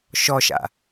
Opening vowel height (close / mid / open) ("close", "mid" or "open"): mid